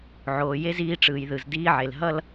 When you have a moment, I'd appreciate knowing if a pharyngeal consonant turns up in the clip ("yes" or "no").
yes